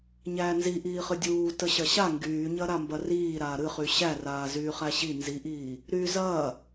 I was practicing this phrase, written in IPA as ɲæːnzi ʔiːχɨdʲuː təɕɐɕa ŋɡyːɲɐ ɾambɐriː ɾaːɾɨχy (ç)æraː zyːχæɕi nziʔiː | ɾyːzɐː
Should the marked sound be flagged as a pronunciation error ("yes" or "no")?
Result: yes